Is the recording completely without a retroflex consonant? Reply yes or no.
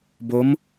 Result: yes